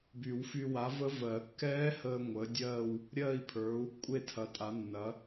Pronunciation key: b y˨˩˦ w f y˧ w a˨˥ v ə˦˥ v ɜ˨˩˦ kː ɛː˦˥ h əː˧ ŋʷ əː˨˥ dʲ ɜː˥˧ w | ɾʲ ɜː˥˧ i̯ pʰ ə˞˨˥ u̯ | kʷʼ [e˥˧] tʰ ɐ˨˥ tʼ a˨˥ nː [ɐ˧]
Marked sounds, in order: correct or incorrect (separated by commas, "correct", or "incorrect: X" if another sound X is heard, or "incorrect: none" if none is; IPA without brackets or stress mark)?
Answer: correct, incorrect: ɐ˨˥